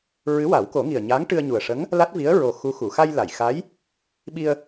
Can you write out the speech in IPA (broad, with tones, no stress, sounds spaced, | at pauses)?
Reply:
ɹ ɨ˧˥ w a˨˩˦ w k o˨˩˦ ŋ i˨˩ ə̯ ɲ a˧˥ ŋ ʈ ɨ˧ ə̯ ɲ u˨˩ ə̯ ʂ ə˧˥ ŋ | l a˦˥ t̚ v i˧˥ ə̯ ɹ o˨˩ x u˧˥ x u˨˩˨ x a˧ j l a˨˩˨ j x a˧˥ j | ɓ i˧ ə̯